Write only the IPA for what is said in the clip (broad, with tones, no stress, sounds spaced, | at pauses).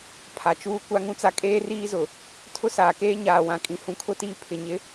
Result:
pʰ a˨ t͡ʃ uː˦ kʷ a˦ ŋ ũ˦ t͡s a˦ kʼ eː˦ r iː˦ z ʊ˨ | tʰ ʊ˦ s aː˨ k eː˦ ɲ aː˨ w ã˨ kʼ ĩ˨ h ũ˨ kʰ ʊ˦ t iː˦ pʰ ɪ˨ ɲ ɪ˦